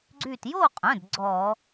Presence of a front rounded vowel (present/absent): present